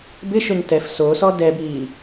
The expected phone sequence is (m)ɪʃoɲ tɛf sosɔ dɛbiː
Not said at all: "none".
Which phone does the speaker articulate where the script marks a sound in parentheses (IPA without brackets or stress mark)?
b